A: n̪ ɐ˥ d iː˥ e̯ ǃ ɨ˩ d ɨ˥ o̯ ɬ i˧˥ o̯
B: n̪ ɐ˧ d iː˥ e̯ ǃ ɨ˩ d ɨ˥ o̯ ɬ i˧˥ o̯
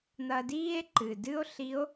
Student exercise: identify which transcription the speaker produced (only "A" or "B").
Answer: B